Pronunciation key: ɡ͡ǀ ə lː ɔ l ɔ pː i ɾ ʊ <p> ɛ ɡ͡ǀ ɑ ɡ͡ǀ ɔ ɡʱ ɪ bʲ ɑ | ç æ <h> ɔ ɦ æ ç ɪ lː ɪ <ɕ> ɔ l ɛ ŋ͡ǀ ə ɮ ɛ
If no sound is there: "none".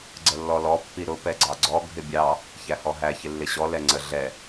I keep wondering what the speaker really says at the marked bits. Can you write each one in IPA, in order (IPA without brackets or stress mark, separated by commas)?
p, h, ɕ